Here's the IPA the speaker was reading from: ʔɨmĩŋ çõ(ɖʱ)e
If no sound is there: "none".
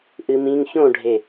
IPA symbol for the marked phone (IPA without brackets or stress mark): ɖʱ